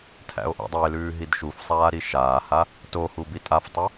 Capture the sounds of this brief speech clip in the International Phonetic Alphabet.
tʰ æ̰ o̯ ʔ o̰ dˤ e l ʉː ɦ i d ʃ u f sˤ aː ɾ i ʃ aː h a | t o h u b i tʼ a f tˤ ʊ

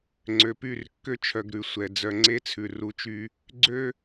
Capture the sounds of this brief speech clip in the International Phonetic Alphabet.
ŋ͡ǀ ø˨ p y˦˨ r kː ø˦ t͡ʃʰ œ˨ ɡ ɾ ʉ˨ sʷ ɛ˨ d͡z œ˨ ŋ͡ǀ e˦ t͡sʰ ʉ˨ r u˦ t͡ʃ y˦ | ɡ͡ǀ ø˦

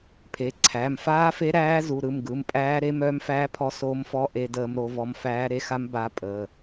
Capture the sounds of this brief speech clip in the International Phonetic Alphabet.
pʰ e˩˧˩ ǀʰ æ˩˧˩ m f aː˦˥ f e˦˥ ɾ æː˦˥ z u˩˧˩ ɾ ɯ˩˧˩ m ɡ ɯ˩˧˩ m pʼ æː˦˥ ɾ e˦˥ m œː˦˥ m f æː˦˥ pʰ ɔ˦˥ s oː˦˥ m f ɔ˦˥ ʔ e˦˥ d əː˦˥ m ɾ o˦˥ v ɔ˦˥ m f æː˦˥ ɾ e˦˥ x a˦˥ m b a˦˥ pʼ əː˩˧˩

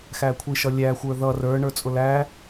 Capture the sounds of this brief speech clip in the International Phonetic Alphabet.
x æ kʷʰ i ʃ ʌ lʲ æ xʷ ə˞ ð ʌ r ə˞ ɳ ə˞ t͡sʼ ʊ l æ

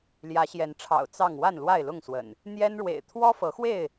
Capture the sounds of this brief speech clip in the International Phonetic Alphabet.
l j ä˨˦ ɕ j ɛ˨˦ n ʈ͡ʂʰ ɑ̰˨˩ ʊ̯ t͡s ɑ˥˨ ŋ w a˥˨ n l w a˥˨ ɪ̯ l ʊ˥˨ ŋ s w ə̰˨˩ n | n̪ j ɛ˦ n ɻ w ḛ˨˩ ɪ̯ t̪ʰ w ɔ˦ f ɤ˨˦ x w e˥˨ ɪ̯

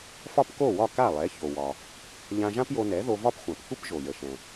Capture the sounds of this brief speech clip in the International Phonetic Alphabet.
f ɒ˥ p k o˥˩ w ɒ˥˩ k a˥˩ lˠ ɛ˩˥ ç o˩ w ɒ˩ | ʎ ã˧ ʒ ã˥ p j o˧ n ɛ˩˥ ð o˧ v ɒ˥ p xʷ ã˩ p kʷ i˥ p ʒ o˩ j ə˩ ʃ ɛ̃˩

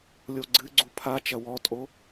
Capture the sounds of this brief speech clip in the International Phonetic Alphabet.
lʲ o ɡ͡ǀ ɨ ɡ͡ǀ u pʰ a t͡ʃ ɐ w ɔ tʼ o

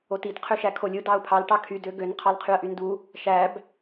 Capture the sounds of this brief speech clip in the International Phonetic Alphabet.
o t i t qʰ ø ʃ æ kʰ o lʲ ɯ d ɑ ʊ̯ pʰ ɑ l ʈ ɑ kʰ y d ø ɡ ø n qʰ ɑ l qʰ y ə̯ ʔ y n d u | ʃ æ b

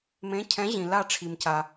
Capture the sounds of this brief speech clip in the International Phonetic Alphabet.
m ẽ˨˥ cʰ ɛ̃˨˥ ʑ ĩ˩ l a˦˨ ʈ͡ʂʰ i˩ m c a˩

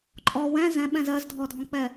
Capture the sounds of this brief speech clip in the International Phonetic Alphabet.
ǃʼ ɔ w ɛ̃ z ɛ̃ ɓ ɛ̃ z ɜ z dʱ ɔ dʱ ɔ̃ k͡p ɛ

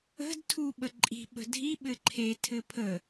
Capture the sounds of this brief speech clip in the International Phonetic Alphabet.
ə̤ d tʰ u ɓ ə ǃʼ i̤ ɓ ə̤ dʱ i ɓ ɘ ǃʰ e tʰ ɘ pʰ ə

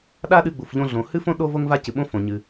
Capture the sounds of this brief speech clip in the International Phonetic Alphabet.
ɗ a˥ ɗ ɨ˥ ɡ͡b u˩ f ʎ õ˥ ɮ õ˩ h ɨ˥ f õ˥ ɗ o˥ v o˥ ŋ v a˥ c ɨ˩ ɓ õ˥ f õ˩ ɲ ɨ˩

